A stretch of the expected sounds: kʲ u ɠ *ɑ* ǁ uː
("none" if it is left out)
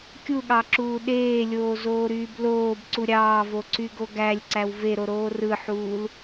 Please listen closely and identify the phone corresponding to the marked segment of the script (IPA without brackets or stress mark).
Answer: ɑ